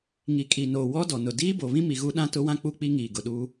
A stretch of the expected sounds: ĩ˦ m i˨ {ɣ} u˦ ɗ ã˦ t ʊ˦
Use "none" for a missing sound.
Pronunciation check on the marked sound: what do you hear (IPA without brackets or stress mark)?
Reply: ɣ